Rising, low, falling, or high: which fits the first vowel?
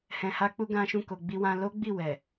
low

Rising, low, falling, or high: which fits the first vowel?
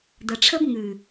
low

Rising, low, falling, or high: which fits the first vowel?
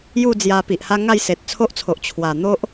falling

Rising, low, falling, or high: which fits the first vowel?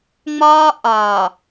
high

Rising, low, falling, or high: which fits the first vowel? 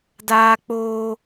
high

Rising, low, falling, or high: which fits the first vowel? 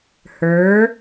rising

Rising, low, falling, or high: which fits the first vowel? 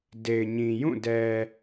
low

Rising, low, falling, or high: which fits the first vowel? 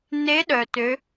rising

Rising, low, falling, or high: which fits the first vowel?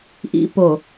low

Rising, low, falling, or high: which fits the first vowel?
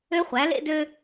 high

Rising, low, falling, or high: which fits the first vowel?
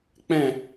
falling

